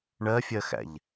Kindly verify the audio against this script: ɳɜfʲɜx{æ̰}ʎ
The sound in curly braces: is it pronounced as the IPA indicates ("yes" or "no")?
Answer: yes